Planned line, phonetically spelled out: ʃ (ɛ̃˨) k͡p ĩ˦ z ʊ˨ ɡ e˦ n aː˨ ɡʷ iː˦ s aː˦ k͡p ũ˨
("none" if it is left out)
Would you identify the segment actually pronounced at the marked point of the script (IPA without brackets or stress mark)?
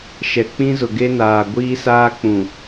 ɛ˨